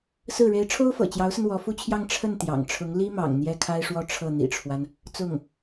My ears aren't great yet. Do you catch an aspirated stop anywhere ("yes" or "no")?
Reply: yes